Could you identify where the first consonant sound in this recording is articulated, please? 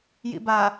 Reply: palatal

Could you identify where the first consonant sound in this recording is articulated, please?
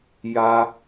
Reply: palatal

